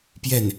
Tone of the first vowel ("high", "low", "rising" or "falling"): falling